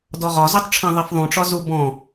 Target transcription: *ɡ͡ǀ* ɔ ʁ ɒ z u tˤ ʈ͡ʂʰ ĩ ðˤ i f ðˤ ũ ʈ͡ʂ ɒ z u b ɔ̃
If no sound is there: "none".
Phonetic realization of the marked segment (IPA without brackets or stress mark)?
d